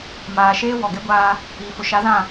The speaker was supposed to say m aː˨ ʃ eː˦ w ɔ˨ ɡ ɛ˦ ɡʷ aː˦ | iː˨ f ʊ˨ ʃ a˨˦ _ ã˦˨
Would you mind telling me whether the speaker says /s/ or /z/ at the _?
z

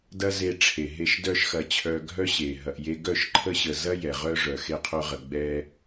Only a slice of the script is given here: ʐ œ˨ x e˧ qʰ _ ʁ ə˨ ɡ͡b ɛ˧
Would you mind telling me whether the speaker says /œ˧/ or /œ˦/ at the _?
œ˧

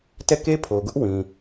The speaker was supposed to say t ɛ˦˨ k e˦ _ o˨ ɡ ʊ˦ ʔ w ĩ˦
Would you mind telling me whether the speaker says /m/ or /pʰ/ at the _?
pʰ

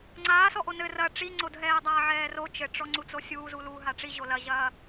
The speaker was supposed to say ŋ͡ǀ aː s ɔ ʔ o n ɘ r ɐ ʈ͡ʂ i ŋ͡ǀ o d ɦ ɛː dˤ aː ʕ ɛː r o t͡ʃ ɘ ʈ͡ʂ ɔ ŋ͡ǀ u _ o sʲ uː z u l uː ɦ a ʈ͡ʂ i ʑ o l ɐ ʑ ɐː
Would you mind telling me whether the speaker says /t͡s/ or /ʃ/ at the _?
t͡s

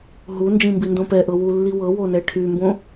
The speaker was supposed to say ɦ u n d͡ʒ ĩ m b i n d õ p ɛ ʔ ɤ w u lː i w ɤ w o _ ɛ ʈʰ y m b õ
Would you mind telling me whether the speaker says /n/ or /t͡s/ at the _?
n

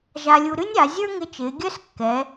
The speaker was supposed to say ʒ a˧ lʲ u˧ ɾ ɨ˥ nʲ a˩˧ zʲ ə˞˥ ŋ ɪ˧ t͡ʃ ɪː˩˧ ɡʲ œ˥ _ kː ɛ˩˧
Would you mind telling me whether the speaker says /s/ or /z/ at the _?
s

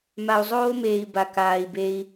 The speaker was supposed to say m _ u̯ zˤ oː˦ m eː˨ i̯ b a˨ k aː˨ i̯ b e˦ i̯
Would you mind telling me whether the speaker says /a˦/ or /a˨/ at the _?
a˨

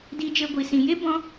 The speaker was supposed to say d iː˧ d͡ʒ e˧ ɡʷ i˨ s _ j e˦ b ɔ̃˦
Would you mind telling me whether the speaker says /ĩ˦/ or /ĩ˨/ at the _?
ĩ˨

